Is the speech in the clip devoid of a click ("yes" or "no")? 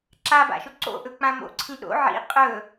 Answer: no